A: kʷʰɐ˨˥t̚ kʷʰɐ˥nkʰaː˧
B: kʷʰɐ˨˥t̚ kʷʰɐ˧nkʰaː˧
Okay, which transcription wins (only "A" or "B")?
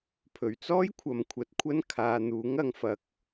A